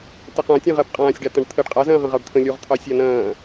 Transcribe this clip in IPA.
t ə q ã tʲ ẽ ʁ ɜ b qʼ ãː sʲ ɖ a t̪ ɐ̃ ɖ t̪ʰ ə ɖ qʼ a z ɐ̃ː ʁ ə̃ ʁ ɑ ɖ t̪ʰ ə̃ lʲ u ʁ t̪ʰ ɑ sʲ a n ɐ̃ː

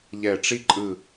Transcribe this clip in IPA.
ʎ ɛ˨˩ ʈ͡ʂ i˧ ǃʼ ɯ˨˩

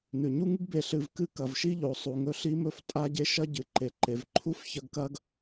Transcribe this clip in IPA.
n ʉ˩ ɲ u˥ ŋ ɨ˥ ɡ b e˨ ɬ ɨ˨ v k ɨ˥ k ɐ˩ v ʃ i˥ ʎ o˩ sˤ u˩ ŋ ɵ˦ ɬ i˦ m ɵ˦ f tʼ a˦ ɟ e˦ ʃ ɐ˥ ɟ ɨ˩ ǃ e˩ ǃ e˩ v ǃʰ u˥ f ç ɐ˦ ɡ k ɐ˥ ɡ

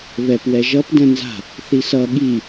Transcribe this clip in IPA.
β ɛ p w ɛ ʒ ʌ p d ɛ̃ n z a̤ | θ i s ʌ ɠ i

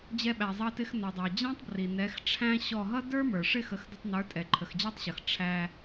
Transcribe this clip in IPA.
d͡ʑ ɛ˧ ɓ æ˩ zˤ ɑ˧ t ɪ˧ x n ɔ˩ dˤ ɑ˩ d͡ʑ ɑ̃˥ tˤ b r i˩ n ɛ˩˥ x ʈ͡ʂʰ æ̃˥ ɕ ɔ˥˩ ɦ ʌ˥ d ə˞˥ m ə˞˩ ʂ ɪ˥˩ x ə˩˥ x d ə˧ tˤ n ə˞˩˥ tʼ ɛ˩ ǃʰ ə˩ x d͡ʑ æ˥ tˤ ɕ ʌ˩ x ʈ͡ʂʰ æ˧

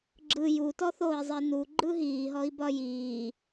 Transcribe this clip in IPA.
ɡ͡ǁ ɯ j u t ɔ θ oː i̯ zˤ i n u ɡ͡ǃ ɯ ɦ iː ɦ ɔ i̯ b ɒ j iː

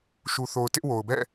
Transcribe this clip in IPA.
ʃ u˨ θ o˨ ʊ̯ t ɪ˦ ʔ w o˨ ʊ̯ b ɛ̰˦˨

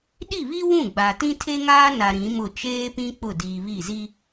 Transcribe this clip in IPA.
ɗ i˦˨ β i˦ w ũ˦˨ ɡ͡b a˨ t ĩ˦ tʰ e˦ ŋ aː˦ n a˨ ɾ ĩ˨˦ m ʊ˦˨ t͡ʃ eː˦ p ĩ˦ k͡p ʊ˦˨ d iː˨ β i˦˨ z i˦

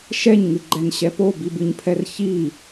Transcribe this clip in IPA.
ʃ ɛ ɲ ŋ ɨ ɡ͡ǃ ɛ n ɕ ɛ p o b i b ɨ ɲ pʰ ɛ r ç i

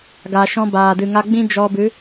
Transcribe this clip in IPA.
ɡ a˨ ʃ ɔ̃˧ b aː˨ d ɨ˨ ŋ a˧ ɡ͡b ĩ˦ d͡ʒ ɔ˧ b ɨ˨˦

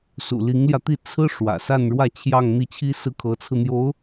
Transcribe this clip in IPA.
s ṵ˨˩ l i˧˥ ŋ l j ä˧ t̪ i˥˩ t͡sʰ ɹ̩˥ ʂ w ä̰˨˩ s a˥˧ n ɻ w ä˥˧ t͡ɕʰ j ɑ˥˧ ŋ n̪ i˥˩ t͡ɕʰ i˥ s ɹ̩˥ kʰ ɤ˧˥ t͡sʰ ɹ̩˧ n̪ j o˧˥ ʊ̯

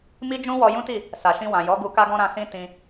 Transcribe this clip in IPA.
m i˦ d͡ʒ ũ˦ w ɔ˧ j ũ˦ t i˦˨ | s a˨ ʃ ĩ˧ w ã˨ j ɔ˨˦ ɡ u˧ k a˦ ɡ ɔ̃˦ ɾ ã˧ s ĩ˦ t ĩ˧

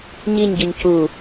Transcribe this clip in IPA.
ɲ i ɲ ɟ ʊ ɲ c u

